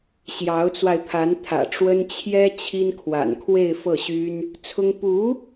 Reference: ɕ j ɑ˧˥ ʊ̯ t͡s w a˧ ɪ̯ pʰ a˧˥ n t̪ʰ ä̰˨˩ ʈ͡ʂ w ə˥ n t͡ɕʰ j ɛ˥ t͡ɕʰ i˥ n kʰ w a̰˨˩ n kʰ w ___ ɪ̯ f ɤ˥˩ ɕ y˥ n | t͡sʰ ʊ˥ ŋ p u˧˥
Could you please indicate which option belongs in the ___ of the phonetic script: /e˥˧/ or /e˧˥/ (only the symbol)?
e˥˧